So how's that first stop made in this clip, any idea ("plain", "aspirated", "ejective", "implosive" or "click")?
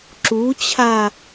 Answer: click